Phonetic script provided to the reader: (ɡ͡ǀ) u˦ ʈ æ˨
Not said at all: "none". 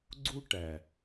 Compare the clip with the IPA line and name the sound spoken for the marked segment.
ɡ͡ǀ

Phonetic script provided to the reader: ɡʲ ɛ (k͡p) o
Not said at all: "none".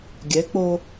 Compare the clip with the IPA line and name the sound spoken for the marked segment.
k͡p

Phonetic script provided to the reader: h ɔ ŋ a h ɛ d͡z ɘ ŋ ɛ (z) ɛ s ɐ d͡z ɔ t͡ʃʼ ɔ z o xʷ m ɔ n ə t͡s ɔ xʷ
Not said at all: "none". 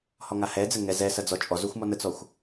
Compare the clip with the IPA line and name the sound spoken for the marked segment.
z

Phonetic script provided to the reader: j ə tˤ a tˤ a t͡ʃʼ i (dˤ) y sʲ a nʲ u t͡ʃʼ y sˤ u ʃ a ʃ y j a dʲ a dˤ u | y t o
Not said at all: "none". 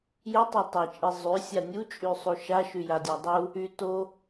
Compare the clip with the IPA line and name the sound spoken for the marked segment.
zˤ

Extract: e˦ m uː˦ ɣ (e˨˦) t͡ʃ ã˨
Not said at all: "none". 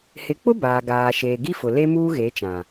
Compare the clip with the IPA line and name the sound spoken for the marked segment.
e˨˦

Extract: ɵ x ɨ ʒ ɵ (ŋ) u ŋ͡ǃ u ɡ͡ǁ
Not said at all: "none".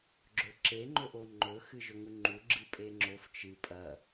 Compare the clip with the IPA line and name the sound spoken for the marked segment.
ŋ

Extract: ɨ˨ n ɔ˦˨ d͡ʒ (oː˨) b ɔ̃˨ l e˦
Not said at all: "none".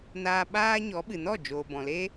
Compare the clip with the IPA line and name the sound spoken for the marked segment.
oː˨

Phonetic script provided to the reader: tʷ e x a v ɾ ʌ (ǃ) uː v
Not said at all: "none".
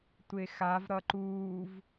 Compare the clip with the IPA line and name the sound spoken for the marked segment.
ǃ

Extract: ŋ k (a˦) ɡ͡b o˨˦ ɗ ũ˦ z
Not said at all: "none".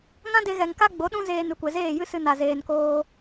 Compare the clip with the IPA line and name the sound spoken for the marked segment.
a˦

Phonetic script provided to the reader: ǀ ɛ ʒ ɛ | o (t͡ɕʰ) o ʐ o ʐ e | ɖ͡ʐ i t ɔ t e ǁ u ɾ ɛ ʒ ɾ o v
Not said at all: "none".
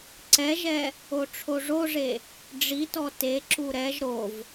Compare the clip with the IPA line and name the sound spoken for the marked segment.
ʈ͡ʂʰ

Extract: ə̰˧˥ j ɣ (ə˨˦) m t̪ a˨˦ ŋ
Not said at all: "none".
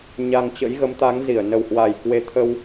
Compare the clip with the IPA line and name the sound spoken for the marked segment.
ə˨˦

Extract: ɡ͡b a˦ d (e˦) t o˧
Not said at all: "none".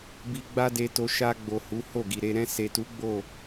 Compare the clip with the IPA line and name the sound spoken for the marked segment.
e˧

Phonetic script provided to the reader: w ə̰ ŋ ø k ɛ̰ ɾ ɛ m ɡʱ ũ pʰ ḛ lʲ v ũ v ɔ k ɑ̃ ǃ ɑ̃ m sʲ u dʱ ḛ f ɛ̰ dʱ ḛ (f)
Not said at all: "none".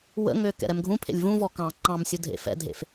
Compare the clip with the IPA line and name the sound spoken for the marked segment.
f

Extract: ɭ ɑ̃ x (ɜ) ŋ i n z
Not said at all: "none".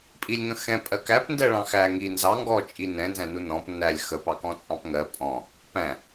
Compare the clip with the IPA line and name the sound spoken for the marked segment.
æ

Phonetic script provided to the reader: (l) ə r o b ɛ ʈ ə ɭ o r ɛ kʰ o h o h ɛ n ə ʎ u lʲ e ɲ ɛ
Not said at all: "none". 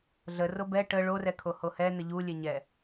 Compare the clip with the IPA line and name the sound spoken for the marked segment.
ɮ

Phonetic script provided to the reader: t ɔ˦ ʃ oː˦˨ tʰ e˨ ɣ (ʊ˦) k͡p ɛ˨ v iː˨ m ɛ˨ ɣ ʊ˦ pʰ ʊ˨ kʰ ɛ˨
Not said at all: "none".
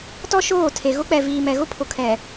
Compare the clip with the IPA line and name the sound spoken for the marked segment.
ʊ˦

